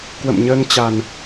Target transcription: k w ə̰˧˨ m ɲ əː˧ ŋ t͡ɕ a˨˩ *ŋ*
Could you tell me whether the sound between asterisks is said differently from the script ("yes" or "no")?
yes